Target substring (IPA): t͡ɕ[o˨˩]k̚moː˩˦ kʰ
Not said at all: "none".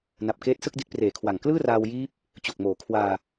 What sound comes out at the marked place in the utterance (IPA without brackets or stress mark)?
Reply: o˨˩